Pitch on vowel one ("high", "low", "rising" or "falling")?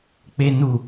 high